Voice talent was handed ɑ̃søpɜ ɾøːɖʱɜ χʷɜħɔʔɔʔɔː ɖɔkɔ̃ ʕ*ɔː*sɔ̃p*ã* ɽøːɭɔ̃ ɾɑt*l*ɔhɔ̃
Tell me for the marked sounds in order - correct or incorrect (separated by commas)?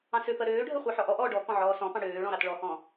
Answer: correct, incorrect, incorrect